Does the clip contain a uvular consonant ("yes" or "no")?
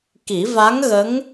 no